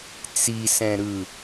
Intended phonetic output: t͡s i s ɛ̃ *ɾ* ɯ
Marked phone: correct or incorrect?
correct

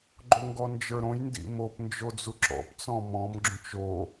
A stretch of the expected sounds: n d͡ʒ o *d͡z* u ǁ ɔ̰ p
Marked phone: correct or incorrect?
correct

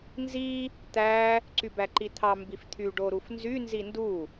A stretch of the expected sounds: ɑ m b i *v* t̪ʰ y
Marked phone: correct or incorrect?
incorrect: f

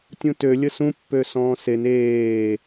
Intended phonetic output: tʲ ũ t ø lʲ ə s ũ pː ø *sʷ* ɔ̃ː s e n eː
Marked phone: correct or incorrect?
incorrect: s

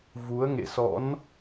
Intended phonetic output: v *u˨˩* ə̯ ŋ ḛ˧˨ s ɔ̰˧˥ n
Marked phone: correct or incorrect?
incorrect: u˨˦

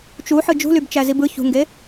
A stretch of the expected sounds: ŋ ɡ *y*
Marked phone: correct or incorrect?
incorrect: e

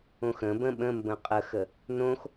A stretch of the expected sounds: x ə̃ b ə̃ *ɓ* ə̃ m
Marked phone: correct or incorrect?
correct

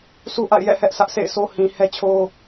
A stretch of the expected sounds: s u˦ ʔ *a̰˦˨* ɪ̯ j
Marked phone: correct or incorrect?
correct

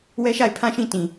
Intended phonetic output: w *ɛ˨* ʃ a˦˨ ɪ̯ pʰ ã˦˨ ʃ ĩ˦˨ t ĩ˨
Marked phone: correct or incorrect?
incorrect: ɛ˦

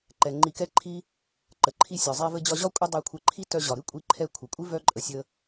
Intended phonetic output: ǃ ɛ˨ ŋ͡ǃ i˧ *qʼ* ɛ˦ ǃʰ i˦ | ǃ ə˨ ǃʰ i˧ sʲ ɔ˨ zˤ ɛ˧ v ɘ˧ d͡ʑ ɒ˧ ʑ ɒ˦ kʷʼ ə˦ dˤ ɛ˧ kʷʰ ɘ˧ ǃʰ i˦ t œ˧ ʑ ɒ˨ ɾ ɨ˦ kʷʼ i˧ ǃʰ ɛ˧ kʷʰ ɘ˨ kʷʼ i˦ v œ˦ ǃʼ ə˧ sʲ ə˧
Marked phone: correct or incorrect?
incorrect: k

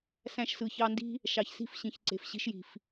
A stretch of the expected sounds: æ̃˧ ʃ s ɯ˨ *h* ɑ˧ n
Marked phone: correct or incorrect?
incorrect: ç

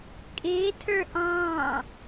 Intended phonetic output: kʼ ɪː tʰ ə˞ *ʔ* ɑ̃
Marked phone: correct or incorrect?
correct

